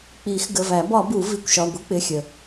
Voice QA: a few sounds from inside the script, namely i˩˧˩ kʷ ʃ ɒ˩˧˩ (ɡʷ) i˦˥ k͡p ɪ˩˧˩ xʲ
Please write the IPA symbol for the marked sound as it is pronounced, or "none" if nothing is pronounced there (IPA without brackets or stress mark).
ɡʷ